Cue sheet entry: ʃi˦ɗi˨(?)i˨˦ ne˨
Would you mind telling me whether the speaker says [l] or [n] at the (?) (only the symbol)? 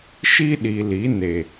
l